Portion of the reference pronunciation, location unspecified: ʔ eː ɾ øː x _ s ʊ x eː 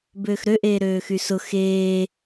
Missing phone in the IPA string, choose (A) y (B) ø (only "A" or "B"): A